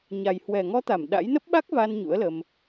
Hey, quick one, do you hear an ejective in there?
no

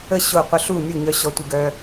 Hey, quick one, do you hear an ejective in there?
no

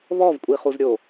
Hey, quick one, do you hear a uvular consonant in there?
yes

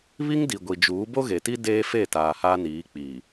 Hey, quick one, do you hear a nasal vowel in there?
no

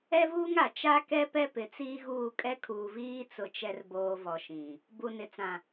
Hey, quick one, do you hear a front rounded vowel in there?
no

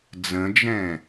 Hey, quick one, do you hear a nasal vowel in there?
yes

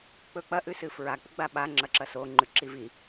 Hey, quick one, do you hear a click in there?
yes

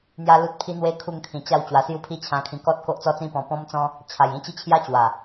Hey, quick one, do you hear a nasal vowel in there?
yes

